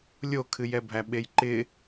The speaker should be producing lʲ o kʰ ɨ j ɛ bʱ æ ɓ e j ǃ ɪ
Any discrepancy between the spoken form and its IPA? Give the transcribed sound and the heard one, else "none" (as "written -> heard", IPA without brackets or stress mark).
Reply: none